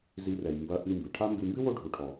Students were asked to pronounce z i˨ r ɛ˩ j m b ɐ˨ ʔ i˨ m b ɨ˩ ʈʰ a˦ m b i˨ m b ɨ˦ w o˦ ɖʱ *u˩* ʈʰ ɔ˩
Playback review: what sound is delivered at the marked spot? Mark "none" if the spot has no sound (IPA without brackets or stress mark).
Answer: u˩